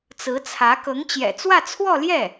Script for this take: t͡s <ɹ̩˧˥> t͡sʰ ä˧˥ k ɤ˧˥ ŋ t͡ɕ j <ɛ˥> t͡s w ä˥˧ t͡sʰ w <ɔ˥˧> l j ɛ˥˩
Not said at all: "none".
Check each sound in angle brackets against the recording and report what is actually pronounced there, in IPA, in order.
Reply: ɹ̩˧˥, ɛ̰˨˩, ɔ˥˧

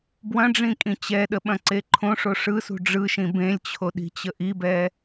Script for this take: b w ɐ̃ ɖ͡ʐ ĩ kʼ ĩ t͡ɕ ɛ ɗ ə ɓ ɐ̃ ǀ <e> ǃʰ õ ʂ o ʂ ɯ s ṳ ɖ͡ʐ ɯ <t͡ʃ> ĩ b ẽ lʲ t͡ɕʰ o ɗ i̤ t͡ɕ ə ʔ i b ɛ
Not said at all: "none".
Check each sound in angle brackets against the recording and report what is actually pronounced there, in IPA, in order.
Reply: e, ʃ

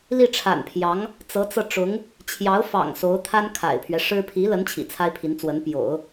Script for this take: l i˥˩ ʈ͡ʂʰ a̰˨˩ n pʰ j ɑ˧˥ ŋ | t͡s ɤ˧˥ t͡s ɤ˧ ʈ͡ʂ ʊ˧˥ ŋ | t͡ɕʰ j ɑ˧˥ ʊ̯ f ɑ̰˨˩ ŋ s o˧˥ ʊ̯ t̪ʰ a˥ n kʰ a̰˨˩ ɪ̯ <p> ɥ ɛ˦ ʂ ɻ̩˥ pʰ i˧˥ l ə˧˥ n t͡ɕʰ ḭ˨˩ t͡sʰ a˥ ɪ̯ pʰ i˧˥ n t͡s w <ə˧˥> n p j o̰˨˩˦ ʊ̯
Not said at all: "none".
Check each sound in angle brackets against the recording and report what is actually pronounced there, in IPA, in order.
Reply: pʰ, ə˧˥

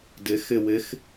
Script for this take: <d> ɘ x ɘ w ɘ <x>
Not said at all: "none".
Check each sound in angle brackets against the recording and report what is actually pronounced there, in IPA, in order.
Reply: d, x

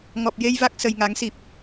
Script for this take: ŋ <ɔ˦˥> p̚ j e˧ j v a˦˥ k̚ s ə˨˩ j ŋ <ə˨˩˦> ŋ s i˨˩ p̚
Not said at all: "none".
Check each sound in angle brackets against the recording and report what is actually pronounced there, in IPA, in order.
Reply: ɔ˨˩, a˨˩˦

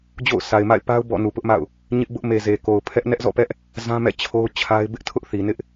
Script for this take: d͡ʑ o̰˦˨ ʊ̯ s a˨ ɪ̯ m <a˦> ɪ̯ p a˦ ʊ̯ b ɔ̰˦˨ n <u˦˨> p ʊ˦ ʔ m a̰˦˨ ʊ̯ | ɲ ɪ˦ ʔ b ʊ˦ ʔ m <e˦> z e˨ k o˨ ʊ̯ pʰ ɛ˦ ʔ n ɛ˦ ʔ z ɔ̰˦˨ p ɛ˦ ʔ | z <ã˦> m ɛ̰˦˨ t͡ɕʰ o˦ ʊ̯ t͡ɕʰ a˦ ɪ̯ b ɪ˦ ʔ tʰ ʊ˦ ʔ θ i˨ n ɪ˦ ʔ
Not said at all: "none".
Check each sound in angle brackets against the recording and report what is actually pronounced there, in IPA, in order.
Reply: a̰˦˨, u˨, e˨, ã˦

